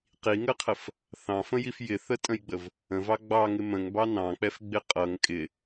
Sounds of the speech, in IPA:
qiŋəqʰəf | θɑ̃fə̃jif jɪθətʼə̃jɡ͡bəv | ə̃vɑ ɡ͡bɑŋɪ mə̃ŋbɑ nɑ̃k͡pɛfɡ͡bɪ qʼʌŋ kʼɪ

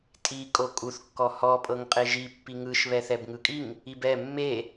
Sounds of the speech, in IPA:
tʼi kʼokʼuθ kːɔhɔ pʼɤŋqʼeʒi pːiŋɯʃ βɛθɛbŋɯkʼiŋ | ibɛ mːe

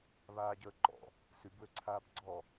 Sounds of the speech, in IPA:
βaːɟəːǃɔ̰ | sybwøǀʰaːb ɡ͡ǀɔ

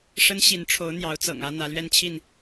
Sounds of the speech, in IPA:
ʂə˦n ɕi˨˦nʈ͡ʂʰo˨˦ʊ̯ n̪jɑ˨˦ʊ̯t͡sɤ̰˨˩ŋä˦ n̪ä˨˦lɥɛ˦nt͡ɕʰi˥˨n

